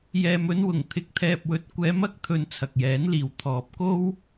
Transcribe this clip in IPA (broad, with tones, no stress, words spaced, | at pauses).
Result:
jɛː˨mɵ˧nwʊ˨˩ŋ t̪ʰɪ˨k̚t̪ʰɛː˨p̚wɵ˨t̚ kʷɛː˨˧mɐ˨˥k̚t̪ʰɵ˨n t͡sʰɐ˨k̚jɛː˨˥nliː˨w t̪ʰɔː˨p̚ko˥w